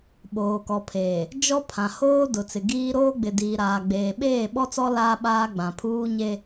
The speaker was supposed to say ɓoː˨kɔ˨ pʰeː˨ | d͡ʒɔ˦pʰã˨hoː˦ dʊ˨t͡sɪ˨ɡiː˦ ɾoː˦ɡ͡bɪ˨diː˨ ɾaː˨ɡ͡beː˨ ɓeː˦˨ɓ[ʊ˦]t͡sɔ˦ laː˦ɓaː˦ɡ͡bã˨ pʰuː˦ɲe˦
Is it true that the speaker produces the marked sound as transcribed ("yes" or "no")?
no